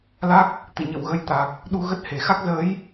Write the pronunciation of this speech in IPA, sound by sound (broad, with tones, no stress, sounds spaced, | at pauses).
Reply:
l a˦˥ k̚ | t̪ ɨ̰˧˨ ɲ ə̰˧˨ w ɣ ə˨˦ j t̪ a˨˩ k̚ | ɗ u˧ ɣ ə˦˥ t̚ h e˧˩ x a˦˥ k̚ z əː˨˦ j